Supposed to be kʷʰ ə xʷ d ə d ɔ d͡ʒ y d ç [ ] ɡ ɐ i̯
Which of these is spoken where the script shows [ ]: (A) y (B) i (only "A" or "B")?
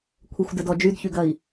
A